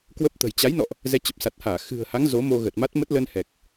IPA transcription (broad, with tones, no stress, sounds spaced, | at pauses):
k w ə˦˥ p̚ t̪ ə̤˨˩ j t͡ɕ a˨˦ j n ɔ̰˧˨ ʔ | z ɛ˨˦ t͡ɕ ə˨˩ p̚ s a˨˩ t̚ h aː˧˩ x ɨ̤˨˩ ə̯ h a˨˦ ŋ z o˨˦ m o˧ ɣ ə˨˩ t̚ m a˦˥ t̚ m ə˦˥ t̚ l ə˧ n h ɛ˨˩ k̚